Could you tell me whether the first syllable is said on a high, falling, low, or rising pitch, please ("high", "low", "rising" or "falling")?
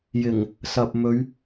low